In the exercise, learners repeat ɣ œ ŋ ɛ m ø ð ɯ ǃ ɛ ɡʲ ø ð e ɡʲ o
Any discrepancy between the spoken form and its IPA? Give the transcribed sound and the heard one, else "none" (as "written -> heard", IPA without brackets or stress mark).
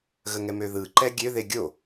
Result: œ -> ə